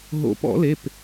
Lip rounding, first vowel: rounded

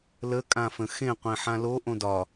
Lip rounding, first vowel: unrounded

